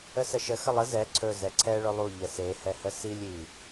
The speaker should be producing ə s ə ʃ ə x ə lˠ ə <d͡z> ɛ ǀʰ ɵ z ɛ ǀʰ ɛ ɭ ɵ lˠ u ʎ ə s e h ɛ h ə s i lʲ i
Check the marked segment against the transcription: incorrect: z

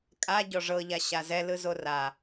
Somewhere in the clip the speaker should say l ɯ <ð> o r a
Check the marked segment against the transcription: incorrect: z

